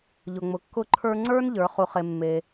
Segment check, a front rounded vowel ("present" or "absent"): absent